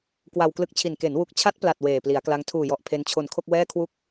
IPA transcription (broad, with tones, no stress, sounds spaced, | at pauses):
k w a˧ w k l ɯ˦˥ k̚ t͡ɕʰ i˨˩ n k e˩˦ n w u˨˩ k̚ t͡ɕʰ a˦˥ t̚ p l a˨˩ t̚ w eː˨˩ p l i˩˦ a̯ k l a˦˥ ŋ tʰ uː˨˩ j ɔ˨˩ ʔ pʰ e˦˥ n t͡ɕʰ o˧ n kʰ o˥˩ k̚ w ɛː˥˩ kʰ w u˥˩ k̚